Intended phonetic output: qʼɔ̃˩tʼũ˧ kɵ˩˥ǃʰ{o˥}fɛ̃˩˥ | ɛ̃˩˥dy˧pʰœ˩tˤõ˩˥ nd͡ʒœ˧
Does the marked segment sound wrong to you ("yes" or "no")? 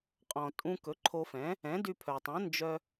yes